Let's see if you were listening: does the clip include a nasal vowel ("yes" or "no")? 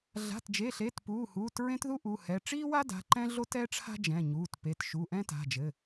yes